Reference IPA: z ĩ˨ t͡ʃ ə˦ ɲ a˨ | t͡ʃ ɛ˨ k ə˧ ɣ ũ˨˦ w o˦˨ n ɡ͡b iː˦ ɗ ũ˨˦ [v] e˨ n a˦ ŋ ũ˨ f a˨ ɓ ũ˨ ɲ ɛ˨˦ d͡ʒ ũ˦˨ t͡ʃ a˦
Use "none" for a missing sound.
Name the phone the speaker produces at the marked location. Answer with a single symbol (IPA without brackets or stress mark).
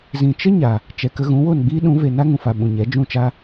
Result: v